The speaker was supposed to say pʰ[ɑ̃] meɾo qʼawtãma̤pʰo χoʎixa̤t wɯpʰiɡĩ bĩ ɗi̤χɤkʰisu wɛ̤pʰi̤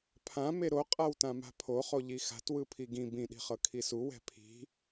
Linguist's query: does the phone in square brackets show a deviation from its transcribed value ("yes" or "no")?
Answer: yes